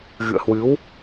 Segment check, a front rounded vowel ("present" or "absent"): absent